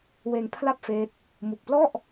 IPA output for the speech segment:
w eː˧ ŋ pʰ l a˥˩ p̚ f eː˦˥ t̚ | m u˨˩ k̚ p l ɔ˥˩ ʔ

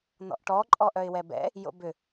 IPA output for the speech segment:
n ɔ̰ ʔ ʈ ɔ ǃʼ ɔ ʔ œ ɪ̯ w ɛ b ɛ̰ | j o̰ b ʏ

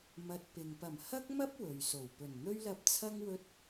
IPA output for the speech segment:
m ɐ˨ t̚ p ɪ˨ ŋ p ɐ˨˩ m h ɐ˥ k̚ m ɐ˥ p̚ w ɵ˨ ɥ s o˨˩ w p ɵ˨˩ n n̪ ɵ˥ ɥ l ɐ˧ p̚ t͡sʰ ɐ˥ ŋ w ɵ˧ t̚

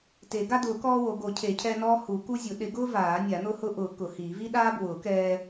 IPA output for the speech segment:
t e˨˩˦ ɡ a˦ d ʊː˨˩˦ k ɔː˦ w o˨˩˦ ɡ o˨˩˦ cʰ e˨˩˦ cʰ ɛː˦ n ɔː˦ h u˨˩˦ k u˦ zʲ ʊ˨˩˦ ɗ ɪ˨˩˦ ɡ ʊː˦ v aː˨˩˦ nʲ a˨˩˦ n̪ ʊ˦ h ʊ˦ ʔ ʊː˨˩˦ k ʊ˨˩˦ h iː˨˩˦ v i˦ ɗ aː˦ b w ʊː˨˩˦ k ɛː˦

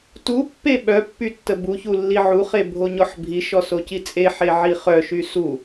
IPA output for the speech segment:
t u pː e ɓ œ pː y tː ə b u ç u lː i ʕ u χ e bʱ o ɲ ɔ ħ bʱ i ʃ ɔ s o c i t͡sʼ e ħ e ʕ i χ œ ʃ y s u

